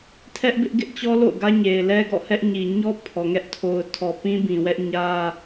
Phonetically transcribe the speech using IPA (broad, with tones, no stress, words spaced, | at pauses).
tʰɛ˦ʔbɪ˦ʔɡɪ˦ʔt͡ɕɔ˦ lo̰˦˨ʊ̯ɡä˦ɲe˨ɪ̯lɛ˦ ɡɔ̰˦˨hɛ˦ʔɲi˨ ɲɔ˦ pʰɔ˨ŋɛ˦ʔ tʰo˨ʊ̯tʰɔ˨ pĩ˦bĩ˨wɛ˦ʔ ɲä˦